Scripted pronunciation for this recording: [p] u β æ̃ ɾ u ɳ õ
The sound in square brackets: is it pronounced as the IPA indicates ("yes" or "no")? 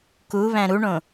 no